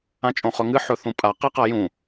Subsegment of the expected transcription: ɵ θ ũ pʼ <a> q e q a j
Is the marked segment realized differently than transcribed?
no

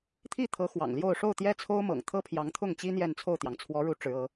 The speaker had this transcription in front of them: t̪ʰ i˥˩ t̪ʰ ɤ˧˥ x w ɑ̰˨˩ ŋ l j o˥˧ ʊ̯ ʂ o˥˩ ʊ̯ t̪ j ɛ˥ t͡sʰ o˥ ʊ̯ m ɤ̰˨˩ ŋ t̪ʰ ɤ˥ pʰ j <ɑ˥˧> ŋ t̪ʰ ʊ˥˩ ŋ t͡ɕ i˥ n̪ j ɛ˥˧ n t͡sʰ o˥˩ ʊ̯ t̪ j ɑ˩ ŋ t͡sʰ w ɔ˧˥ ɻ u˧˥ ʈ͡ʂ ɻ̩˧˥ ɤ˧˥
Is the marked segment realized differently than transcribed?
yes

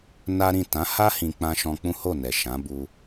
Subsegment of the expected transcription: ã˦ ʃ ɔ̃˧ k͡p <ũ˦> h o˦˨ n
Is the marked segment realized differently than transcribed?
no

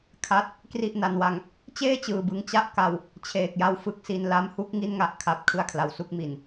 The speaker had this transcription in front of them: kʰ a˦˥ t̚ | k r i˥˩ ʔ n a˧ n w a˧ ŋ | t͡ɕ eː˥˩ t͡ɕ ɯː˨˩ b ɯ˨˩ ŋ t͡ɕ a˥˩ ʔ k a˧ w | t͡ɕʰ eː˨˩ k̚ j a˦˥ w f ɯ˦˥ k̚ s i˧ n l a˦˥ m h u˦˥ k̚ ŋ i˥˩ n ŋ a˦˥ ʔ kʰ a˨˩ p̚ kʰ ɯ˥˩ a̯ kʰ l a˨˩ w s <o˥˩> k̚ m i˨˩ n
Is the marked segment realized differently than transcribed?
yes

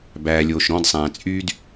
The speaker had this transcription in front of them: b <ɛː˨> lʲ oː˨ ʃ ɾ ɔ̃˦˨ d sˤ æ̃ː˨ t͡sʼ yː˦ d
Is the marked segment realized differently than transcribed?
yes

